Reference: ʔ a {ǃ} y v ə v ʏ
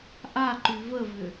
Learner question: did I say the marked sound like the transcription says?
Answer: yes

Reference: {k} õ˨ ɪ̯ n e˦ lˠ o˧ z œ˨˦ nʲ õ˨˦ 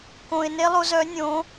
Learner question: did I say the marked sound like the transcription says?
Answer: yes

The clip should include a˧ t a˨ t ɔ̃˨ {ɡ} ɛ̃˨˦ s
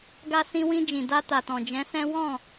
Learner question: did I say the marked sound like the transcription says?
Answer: no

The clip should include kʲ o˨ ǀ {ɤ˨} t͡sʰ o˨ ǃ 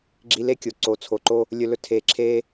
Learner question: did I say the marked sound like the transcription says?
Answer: no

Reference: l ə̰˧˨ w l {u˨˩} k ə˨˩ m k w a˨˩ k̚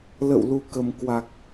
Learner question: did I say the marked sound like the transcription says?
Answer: yes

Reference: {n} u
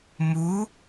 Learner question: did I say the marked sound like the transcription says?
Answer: no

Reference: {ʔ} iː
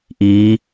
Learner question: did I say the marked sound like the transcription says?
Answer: yes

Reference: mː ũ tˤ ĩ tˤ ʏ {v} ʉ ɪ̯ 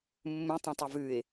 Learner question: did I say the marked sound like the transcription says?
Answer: yes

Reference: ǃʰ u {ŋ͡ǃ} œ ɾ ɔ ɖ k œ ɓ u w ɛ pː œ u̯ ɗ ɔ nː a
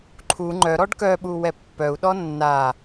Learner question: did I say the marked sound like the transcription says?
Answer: yes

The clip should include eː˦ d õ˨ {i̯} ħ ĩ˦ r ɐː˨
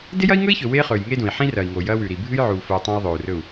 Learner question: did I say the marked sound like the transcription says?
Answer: yes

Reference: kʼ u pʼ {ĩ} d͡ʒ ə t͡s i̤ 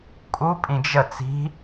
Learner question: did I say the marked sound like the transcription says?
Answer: yes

